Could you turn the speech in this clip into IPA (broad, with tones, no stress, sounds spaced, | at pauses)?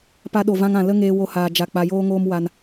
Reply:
p a˧ ɗ o˨ v ã˧ ŋ ã˨ l ə˦ ŋ eː˧ w o˧ h aː˨ d͡ʒ a˨ k͡p a˧ j oː˦ ŋ oː˦ m w a˧ n